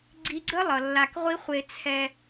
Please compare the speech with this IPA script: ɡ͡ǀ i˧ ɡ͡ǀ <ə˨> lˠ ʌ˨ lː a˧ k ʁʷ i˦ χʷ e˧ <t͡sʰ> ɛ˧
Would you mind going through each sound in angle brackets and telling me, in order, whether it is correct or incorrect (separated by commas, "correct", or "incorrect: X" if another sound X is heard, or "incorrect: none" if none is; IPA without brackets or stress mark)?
incorrect: ə˦, correct